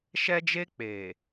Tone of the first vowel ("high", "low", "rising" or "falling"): high